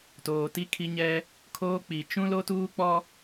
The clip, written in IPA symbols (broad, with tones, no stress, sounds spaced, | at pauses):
t oː˨ t i˦ kʰ i˦ ɲ ɛ˦ | kʰ oː˦ k͡p i˨ t͡ʃ ũ˦ l o˦ t uː˦ k͡p ɔ˦